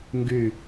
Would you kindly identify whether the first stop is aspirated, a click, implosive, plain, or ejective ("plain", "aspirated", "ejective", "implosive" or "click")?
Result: plain